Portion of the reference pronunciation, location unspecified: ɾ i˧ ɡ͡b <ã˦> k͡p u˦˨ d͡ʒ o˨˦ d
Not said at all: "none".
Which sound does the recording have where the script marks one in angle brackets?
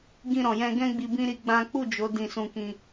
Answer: ã˦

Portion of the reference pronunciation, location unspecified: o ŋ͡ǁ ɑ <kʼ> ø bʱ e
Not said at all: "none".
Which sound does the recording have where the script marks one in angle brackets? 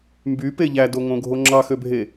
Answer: x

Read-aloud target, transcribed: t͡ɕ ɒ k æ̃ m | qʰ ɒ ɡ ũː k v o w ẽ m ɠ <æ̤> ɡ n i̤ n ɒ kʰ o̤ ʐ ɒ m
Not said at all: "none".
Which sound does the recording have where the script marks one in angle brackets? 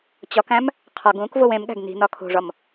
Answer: æ̤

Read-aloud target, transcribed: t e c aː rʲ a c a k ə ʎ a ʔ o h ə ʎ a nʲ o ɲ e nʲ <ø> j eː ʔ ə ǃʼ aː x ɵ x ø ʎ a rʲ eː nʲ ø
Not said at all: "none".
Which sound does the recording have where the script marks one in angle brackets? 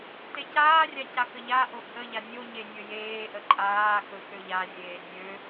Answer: ɵ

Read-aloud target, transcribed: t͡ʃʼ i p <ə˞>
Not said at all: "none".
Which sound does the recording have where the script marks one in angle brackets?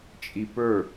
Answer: ə˞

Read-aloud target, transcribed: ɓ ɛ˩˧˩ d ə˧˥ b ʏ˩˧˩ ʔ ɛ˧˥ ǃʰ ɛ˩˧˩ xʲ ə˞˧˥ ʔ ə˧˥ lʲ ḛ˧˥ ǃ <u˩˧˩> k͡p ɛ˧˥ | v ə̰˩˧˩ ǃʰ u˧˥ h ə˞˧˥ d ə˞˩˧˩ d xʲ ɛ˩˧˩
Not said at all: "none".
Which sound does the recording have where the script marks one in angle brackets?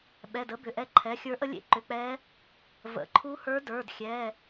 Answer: ʏ˩˧˩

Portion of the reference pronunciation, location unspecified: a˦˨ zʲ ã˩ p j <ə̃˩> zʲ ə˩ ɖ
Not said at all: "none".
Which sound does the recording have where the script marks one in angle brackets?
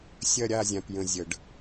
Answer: ə̃˩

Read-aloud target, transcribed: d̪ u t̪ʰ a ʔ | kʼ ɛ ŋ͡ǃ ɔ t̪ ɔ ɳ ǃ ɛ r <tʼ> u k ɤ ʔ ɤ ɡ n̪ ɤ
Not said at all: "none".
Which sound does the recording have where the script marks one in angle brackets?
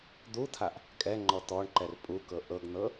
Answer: pʼ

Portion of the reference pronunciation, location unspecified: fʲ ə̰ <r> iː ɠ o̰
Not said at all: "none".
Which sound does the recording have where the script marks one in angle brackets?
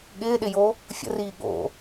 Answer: r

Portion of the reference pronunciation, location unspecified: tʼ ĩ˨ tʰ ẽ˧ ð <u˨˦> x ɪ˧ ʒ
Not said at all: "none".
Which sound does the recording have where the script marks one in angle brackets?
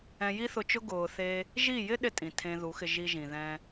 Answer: u˨˦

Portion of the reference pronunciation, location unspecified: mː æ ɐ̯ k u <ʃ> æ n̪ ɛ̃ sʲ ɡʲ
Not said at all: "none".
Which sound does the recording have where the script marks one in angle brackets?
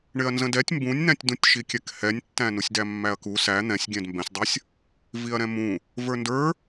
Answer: s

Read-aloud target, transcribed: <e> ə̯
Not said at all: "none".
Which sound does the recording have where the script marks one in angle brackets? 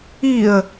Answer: i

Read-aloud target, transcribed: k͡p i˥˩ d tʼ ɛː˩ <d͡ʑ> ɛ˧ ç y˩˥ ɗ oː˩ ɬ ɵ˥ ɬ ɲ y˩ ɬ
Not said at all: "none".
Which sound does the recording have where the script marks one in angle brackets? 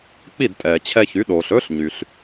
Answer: t͡ɕʰ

